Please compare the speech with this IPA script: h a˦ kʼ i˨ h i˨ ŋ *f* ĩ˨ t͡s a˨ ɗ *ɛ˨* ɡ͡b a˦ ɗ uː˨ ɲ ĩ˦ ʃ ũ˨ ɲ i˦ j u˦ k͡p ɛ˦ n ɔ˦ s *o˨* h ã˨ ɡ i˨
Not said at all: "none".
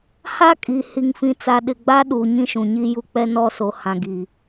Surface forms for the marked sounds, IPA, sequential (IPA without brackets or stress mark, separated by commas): f, ɪ˨, o˨